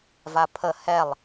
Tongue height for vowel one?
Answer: low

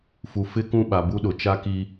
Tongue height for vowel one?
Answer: high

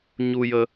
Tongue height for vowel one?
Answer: high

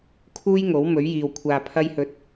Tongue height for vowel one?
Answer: high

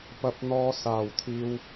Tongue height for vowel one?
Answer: low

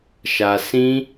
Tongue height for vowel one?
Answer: low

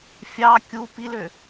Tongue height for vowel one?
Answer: low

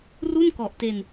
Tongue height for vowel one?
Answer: high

